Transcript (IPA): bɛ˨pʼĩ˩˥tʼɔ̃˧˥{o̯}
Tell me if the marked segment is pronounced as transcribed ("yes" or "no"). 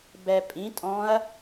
no